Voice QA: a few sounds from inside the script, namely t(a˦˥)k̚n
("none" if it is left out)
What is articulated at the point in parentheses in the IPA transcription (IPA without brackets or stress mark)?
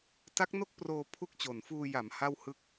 a˦˥